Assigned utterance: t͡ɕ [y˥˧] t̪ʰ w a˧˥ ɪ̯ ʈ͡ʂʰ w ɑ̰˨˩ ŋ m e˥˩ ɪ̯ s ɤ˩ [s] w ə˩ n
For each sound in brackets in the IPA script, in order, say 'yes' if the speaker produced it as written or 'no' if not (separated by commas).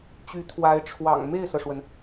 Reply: no, no